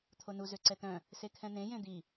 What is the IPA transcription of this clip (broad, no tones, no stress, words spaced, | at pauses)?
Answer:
t̪ʰonu zøǀɛt̪œ̃ | sekʰɛ̃n̪ẽ jẽd̪i